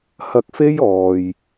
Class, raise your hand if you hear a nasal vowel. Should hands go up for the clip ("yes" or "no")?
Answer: no